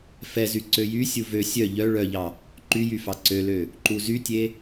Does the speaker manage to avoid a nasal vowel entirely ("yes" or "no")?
yes